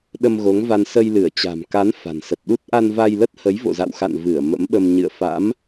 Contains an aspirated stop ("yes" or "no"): no